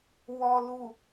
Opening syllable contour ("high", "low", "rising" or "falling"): low